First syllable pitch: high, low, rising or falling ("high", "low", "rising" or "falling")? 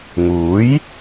rising